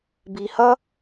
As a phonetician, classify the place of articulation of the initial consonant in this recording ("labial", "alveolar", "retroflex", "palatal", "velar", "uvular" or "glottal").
labial